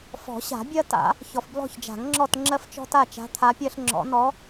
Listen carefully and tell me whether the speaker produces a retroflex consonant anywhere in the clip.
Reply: no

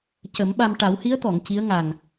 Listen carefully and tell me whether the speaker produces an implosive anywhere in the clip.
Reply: yes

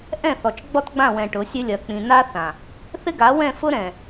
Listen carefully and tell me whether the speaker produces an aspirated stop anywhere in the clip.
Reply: no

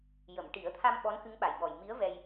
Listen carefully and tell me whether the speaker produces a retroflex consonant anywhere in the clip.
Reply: yes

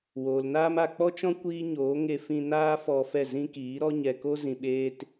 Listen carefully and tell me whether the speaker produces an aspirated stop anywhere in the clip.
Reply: no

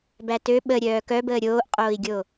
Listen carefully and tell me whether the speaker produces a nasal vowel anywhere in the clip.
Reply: no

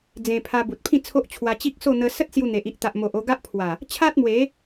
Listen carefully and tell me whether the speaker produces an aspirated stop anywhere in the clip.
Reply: yes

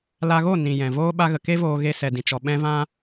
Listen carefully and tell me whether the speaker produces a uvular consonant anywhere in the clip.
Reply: no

